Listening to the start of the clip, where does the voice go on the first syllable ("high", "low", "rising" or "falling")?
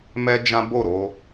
high